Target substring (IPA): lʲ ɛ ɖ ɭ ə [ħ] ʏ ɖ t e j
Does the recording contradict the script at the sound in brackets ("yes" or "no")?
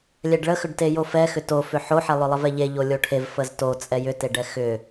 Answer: yes